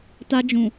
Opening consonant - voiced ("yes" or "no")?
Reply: no